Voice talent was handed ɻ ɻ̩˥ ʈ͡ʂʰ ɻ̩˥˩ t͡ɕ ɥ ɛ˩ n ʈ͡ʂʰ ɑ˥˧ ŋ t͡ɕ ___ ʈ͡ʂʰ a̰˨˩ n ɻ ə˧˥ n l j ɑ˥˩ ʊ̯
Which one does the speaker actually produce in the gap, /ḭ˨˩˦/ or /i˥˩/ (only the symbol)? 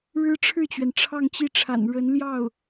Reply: i˥˩